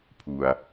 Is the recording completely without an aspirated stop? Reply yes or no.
no